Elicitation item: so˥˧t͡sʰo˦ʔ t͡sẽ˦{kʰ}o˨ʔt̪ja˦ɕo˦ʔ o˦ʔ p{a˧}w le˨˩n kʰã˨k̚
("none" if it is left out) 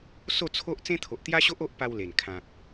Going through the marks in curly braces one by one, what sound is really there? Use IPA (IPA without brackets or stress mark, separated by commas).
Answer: t̪ʰ, a˧